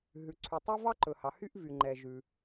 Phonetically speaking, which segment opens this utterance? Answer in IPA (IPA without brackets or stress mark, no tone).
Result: ɦ